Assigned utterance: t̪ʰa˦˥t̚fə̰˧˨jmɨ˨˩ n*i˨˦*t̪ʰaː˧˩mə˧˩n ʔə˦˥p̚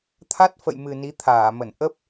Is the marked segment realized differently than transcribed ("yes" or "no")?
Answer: no